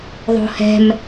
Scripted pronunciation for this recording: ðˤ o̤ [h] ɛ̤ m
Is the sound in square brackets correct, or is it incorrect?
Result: correct